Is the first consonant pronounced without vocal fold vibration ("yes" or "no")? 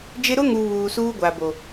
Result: no